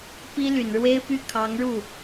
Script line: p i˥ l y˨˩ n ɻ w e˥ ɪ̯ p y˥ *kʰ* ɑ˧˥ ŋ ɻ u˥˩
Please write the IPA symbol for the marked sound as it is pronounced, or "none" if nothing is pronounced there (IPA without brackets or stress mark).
kʰ